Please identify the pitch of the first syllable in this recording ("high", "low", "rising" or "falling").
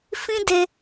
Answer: high